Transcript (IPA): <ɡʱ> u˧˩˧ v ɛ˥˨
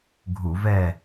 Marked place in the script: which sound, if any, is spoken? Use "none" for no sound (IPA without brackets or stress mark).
ɡʱ